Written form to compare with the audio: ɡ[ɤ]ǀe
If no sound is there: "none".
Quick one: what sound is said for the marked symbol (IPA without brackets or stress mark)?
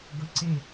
ɤ